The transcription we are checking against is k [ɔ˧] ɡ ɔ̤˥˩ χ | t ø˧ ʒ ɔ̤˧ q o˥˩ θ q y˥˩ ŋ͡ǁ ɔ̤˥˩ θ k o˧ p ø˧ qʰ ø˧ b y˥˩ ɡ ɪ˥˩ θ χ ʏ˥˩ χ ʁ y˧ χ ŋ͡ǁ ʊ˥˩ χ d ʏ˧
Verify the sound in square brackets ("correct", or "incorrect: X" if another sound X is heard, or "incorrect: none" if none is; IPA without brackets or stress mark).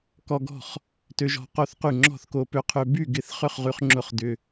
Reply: correct